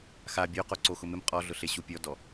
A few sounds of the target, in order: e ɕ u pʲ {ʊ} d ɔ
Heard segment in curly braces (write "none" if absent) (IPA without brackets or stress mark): ɔ